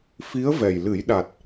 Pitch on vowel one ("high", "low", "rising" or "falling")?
rising